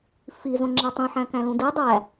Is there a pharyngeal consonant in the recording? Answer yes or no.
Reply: yes